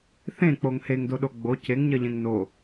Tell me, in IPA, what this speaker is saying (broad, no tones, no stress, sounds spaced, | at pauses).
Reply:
θ ẽ k͡p o ŋ h e ŋ d o ɗ o ɡ͡b o cʰ e ŋ ɲ ɜ ʎ ẽ ŋ n o